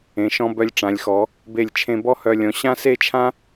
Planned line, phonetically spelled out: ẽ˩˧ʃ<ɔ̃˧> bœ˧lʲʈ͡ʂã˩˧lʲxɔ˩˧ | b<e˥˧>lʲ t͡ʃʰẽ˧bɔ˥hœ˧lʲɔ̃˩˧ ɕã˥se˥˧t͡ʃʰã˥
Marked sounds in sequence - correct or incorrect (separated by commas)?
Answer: correct, incorrect